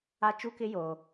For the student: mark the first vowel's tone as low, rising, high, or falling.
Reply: high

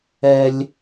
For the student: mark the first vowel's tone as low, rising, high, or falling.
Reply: high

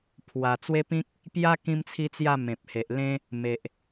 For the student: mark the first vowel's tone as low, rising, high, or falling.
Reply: low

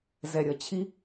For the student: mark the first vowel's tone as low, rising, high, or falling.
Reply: low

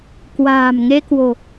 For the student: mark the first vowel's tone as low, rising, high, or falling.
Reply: low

